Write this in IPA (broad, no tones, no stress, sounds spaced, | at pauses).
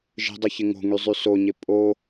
ʒ ə̤ dˤ u ç ɪ ŋ o̤ ŋ y zˤ y s o ɲ ɪ pʼ o